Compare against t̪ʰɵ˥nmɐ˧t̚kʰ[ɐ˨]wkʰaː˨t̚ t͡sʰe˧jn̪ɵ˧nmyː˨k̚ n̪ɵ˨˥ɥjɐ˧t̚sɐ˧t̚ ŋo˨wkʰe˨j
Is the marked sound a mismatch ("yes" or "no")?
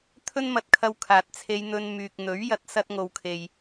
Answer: yes